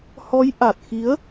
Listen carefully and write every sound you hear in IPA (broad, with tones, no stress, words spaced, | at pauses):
hɔ˨˦j ʔa˨˩t̚ xi˨˦ə̯